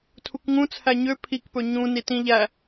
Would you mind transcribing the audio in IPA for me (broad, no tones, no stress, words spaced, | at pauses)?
tʰukŋũ t͡sʰæɲø pʰikpɵ ɲũ nitĩ ʎæ